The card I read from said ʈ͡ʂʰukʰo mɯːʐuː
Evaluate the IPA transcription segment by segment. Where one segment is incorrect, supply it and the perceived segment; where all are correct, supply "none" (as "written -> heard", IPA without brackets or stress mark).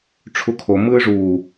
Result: none